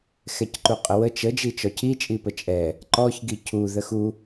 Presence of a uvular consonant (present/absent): present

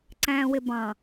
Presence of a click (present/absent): present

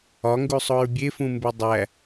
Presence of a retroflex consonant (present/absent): absent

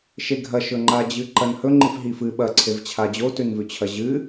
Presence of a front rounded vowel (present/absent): absent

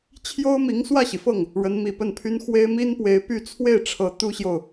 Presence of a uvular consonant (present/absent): absent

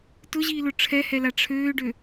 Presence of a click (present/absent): absent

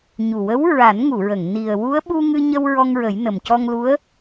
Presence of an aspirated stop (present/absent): absent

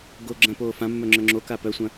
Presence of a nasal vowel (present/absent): present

